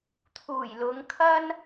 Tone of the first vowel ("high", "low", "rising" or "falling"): low